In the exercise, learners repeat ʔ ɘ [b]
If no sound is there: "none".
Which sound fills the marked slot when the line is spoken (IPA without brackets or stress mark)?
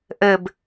b